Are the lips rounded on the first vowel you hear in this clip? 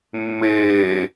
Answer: no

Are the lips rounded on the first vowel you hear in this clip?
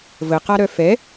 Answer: no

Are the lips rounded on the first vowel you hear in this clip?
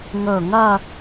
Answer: yes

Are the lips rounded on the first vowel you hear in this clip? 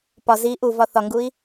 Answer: yes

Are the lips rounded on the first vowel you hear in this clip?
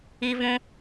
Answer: no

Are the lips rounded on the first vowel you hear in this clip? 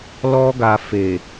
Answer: yes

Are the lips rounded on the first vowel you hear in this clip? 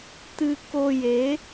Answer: no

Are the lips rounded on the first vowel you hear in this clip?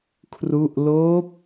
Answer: yes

